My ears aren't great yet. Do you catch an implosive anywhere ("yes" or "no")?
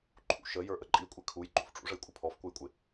no